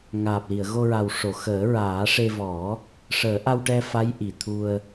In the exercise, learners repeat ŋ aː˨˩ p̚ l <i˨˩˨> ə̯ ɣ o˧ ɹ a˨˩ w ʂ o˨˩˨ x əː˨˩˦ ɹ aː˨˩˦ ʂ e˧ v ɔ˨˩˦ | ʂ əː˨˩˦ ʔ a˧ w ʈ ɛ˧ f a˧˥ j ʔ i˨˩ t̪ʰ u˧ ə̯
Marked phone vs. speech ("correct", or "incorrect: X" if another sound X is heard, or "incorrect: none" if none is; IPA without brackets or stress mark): correct